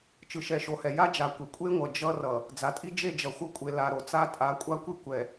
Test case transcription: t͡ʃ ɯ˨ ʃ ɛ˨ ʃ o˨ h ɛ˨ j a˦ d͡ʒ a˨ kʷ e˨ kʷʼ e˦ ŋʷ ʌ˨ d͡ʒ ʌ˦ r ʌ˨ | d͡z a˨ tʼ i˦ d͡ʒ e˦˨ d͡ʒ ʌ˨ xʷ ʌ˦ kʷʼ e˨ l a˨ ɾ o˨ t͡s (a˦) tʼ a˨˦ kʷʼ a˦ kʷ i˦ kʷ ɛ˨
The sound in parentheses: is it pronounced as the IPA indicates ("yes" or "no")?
yes